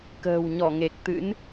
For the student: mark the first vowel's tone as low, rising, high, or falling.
low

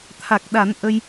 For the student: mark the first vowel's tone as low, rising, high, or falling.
low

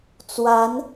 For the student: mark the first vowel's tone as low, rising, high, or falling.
rising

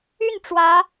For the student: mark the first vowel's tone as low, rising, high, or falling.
falling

